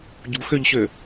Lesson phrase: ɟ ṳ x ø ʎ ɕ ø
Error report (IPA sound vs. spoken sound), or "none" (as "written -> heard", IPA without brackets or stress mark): none